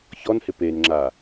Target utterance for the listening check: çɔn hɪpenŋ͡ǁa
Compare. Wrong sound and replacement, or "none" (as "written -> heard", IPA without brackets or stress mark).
none